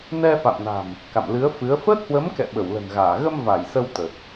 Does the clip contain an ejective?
no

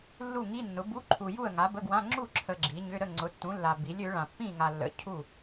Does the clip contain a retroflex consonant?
yes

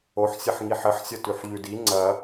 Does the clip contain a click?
yes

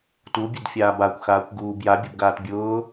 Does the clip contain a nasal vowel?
no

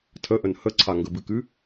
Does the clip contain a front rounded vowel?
no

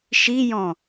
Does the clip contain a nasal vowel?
yes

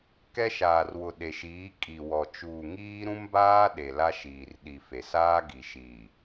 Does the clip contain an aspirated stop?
no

